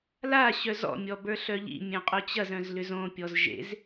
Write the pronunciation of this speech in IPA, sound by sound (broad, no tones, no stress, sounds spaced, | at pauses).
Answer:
l a ɕ œ z ɔ̰ mʲ ɔ b ə˞ ɬ œ ʎ ḭ mʲ œ̃ qʼ o t͡ɕ ɐ z œ̃ z l ʏ z õ pʲ ɔ z ʒ ḛ z